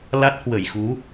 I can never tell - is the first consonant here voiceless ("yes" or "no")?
no